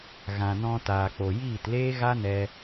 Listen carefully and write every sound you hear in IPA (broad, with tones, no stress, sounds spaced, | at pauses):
ɣ ã˨ n ɔ̃˧ t aː˨ k͡p o˨ j iː˦˨ t l eː˦ ɣ a˦ n ɛ˧